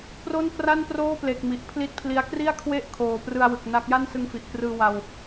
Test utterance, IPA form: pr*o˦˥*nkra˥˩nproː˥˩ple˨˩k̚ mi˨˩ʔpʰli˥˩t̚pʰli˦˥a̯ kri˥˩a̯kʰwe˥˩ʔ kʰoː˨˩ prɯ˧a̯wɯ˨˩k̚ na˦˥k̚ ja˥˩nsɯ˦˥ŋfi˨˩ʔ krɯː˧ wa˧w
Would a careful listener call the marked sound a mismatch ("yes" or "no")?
yes